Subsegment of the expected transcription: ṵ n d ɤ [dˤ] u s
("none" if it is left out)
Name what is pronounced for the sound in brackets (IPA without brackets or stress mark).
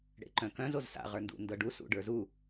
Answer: ɖ